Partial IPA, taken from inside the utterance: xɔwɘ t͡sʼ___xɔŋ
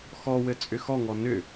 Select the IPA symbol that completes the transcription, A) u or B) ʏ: B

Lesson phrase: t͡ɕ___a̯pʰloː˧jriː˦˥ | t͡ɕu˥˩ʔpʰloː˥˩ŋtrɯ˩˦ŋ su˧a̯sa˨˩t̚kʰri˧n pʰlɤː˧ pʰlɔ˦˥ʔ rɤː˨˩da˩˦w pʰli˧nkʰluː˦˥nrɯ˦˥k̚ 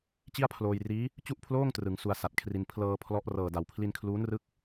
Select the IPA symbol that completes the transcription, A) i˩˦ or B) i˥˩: B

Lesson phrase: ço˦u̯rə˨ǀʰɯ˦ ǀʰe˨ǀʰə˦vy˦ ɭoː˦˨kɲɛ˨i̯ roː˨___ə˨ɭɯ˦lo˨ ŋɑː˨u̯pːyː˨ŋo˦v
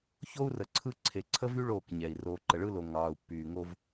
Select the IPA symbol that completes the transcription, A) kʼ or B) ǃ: B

